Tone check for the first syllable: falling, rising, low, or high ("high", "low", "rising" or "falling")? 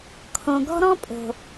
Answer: low